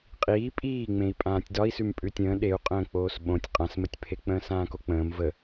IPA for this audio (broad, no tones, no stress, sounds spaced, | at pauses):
qʼ iː pʼ iː ŋ͡m ẽ i̯ pʼ ãː tʲ d ɒ i̯ s ʉ m pʼ ʉ tʲ ə̃ː ɗ e u̯ qʼ ə̃ː k͡p oː s ɓ õ tʲ qʼ ã s m ə tʲ pʰ e k͡p ə̃ː s ãː k o k͡p ə̃ː m v ə